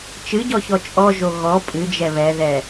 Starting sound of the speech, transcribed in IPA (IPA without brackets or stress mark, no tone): t͡ʃ